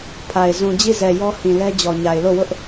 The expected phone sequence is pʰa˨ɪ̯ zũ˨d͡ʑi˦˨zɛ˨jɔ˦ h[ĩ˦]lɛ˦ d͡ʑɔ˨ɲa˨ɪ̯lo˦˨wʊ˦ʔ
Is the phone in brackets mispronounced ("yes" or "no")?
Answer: yes